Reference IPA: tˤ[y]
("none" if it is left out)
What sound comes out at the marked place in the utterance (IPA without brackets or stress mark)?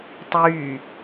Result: y